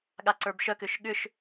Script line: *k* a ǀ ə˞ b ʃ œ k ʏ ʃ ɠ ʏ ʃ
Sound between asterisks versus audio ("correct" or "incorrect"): incorrect